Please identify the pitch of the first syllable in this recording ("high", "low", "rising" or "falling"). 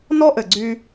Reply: high